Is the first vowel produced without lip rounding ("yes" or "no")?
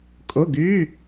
no